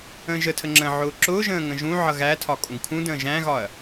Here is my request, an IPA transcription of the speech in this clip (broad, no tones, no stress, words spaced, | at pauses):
ə̃ːʒətʰə ŋ͡ǁə̃ʕʊː ǁʊːʒə̃ː ŋə̃ʒũʕʌ ɣætʰɒ kʼũɡkʰũdə̃ː ʒæ̃ɣɒɐ̯